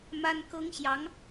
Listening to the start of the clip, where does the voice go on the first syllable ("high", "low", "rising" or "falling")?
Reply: high